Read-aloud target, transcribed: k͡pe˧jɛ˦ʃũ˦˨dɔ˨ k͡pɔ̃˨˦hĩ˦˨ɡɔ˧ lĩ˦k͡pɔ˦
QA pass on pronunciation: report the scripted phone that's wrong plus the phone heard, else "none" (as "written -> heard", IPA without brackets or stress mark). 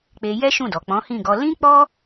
none